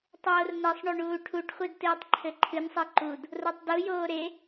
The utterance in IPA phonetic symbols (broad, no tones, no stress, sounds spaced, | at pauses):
tˤ oː r n ɛ sˤ ɳ o ɳ uː ʈʰ u ʈ χʷ i d t ɨː tˤ ǃʰ ɘ ǃʰ ɨ n sˤ e ǃ u d | r o tˤ d u j oː ɾ e